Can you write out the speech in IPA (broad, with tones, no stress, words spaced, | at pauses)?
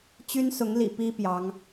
t͡ɕy˥nsʊ˧˥ŋlḭ˨˩ pi˥ pjɑ˧˥ŋ